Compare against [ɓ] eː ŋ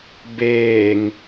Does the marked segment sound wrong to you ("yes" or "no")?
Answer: yes